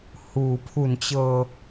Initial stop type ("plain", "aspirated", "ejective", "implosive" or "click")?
aspirated